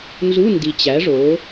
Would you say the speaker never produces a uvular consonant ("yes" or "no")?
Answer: yes